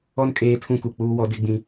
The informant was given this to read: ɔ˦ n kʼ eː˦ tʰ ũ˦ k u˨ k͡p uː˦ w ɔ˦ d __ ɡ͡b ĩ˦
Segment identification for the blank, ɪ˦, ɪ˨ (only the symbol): ɪ˦